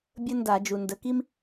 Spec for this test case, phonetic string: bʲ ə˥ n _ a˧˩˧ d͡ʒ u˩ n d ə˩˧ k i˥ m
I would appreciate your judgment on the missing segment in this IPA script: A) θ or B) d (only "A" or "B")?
B